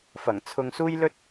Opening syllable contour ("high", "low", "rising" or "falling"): low